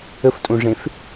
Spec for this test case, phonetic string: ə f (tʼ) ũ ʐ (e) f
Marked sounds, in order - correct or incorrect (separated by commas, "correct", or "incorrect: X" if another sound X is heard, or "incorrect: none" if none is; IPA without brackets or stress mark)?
correct, incorrect: ẽ